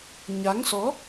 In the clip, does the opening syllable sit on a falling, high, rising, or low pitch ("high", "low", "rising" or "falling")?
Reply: rising